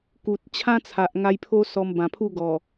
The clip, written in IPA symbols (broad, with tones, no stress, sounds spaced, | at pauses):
k u˨ t̚ t͡ɕʰ ã˦ t͡sʰ a˨ ʔ ŋ a˧ j pʰ o˦ s ɔ˧ m b ã˨˩ pʰ u˥˧ ɡ ɔ˨˩